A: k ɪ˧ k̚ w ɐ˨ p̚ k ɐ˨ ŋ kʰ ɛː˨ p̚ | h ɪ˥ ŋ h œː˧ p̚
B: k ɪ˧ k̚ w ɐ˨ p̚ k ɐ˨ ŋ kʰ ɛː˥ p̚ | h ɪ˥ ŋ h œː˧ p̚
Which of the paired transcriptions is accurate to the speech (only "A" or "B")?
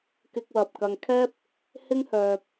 B